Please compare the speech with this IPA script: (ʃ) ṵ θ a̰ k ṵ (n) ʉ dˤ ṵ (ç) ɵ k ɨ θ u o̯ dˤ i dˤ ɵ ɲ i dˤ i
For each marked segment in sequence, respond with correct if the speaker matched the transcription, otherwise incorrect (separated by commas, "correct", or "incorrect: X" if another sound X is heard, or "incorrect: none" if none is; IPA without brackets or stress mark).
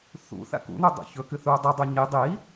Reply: incorrect: θ, correct, correct